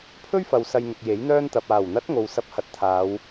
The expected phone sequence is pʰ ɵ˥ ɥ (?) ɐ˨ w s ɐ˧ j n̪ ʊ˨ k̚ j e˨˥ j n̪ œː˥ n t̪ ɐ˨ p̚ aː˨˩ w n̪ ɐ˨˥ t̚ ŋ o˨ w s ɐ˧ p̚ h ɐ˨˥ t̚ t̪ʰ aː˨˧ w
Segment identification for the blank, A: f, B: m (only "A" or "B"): A